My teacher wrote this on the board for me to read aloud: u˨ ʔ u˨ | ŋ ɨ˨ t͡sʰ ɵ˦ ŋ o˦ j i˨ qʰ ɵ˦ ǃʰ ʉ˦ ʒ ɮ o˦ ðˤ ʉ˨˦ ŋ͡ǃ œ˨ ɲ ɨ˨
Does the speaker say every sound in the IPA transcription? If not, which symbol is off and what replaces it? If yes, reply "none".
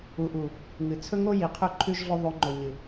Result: œ˨ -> ɵ˨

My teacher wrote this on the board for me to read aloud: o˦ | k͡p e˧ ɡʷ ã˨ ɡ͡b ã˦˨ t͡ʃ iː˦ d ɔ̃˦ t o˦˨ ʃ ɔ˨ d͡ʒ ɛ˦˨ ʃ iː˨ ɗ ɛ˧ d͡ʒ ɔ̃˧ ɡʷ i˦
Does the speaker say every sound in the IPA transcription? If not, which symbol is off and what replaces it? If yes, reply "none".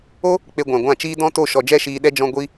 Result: ɡ͡b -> ɡʷ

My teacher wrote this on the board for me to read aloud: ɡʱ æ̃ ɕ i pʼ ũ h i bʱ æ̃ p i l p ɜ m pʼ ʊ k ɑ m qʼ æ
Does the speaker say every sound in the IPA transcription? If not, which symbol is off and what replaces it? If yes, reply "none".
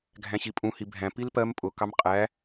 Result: none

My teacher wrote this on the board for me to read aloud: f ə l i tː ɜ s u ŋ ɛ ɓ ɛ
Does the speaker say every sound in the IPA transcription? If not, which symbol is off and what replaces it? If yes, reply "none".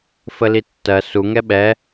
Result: none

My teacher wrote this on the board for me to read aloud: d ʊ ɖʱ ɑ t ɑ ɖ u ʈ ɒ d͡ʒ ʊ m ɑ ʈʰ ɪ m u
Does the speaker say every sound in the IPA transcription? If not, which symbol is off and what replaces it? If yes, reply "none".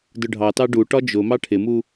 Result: none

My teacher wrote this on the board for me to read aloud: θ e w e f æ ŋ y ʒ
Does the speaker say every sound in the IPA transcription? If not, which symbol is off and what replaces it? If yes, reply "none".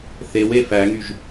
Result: none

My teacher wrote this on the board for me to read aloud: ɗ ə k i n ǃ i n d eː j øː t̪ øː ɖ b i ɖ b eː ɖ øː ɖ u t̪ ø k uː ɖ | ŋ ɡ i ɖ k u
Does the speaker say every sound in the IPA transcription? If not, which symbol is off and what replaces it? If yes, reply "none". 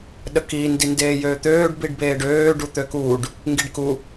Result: ǃ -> d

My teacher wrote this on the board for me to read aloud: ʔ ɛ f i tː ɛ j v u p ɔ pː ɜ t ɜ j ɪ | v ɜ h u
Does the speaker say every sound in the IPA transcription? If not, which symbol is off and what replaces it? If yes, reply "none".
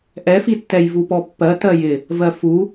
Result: h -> f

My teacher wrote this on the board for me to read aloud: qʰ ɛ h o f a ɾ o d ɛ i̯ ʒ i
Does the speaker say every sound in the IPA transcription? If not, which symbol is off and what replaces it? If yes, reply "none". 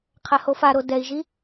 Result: none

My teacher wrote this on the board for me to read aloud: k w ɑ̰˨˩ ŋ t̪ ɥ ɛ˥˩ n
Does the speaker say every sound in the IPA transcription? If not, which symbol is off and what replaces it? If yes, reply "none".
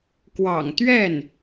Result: none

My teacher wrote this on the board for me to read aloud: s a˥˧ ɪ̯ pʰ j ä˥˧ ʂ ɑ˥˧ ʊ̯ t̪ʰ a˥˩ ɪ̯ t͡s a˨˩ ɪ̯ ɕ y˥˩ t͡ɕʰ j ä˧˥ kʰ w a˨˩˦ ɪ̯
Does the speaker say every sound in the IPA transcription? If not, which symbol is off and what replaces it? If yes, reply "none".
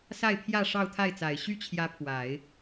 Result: kʰ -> pʰ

